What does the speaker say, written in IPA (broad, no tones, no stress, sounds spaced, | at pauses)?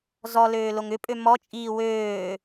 z ɔ l øː l o ŋ ʏ pʼ ø m ɔ t͡ʃʼ iː w øː